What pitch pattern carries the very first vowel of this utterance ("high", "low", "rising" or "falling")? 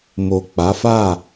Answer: low